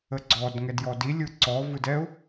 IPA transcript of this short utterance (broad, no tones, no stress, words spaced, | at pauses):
əɡ͡ǀɔdŋɛd jɔdilʲɯ ǀɔvɯd ɛʊ̯